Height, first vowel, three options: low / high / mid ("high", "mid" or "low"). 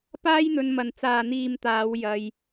low